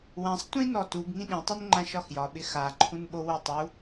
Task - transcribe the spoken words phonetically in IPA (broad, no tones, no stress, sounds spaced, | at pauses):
w ã sˤ tʷ ĩ n ɔ t u ɡ ŋ ĩ ɗ ĩ tˤ u n ŋ͡ǃ ã ʃ ɒ x j ɒ ɓ ɪ x a ǃʰ ũ n ɓ o w o tˤ u